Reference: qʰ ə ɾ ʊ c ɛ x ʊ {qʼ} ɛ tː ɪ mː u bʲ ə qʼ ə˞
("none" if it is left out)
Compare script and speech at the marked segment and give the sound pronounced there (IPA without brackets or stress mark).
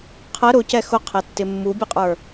qʰ